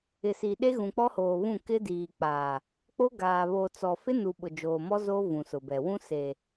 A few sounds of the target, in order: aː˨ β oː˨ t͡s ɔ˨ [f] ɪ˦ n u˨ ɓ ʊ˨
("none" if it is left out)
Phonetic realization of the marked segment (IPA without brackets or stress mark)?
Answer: f